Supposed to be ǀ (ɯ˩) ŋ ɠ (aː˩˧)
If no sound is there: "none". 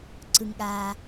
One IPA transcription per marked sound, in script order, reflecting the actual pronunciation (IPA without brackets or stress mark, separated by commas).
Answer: ɯ˩, aː˩